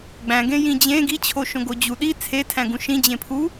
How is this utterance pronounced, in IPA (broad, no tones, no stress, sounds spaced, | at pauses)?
ɡ͡b æ̃ ɡ ẽ j ĩ d͡ʑ ẽ ɡ i t͡ɕʰ o ʃ õ ɡ o d͡ʑ u ɗ i t͡sʰ e tʰ æ̃ ɡ ũ ʃ ĩ d͡ʑ ẽ pʰ u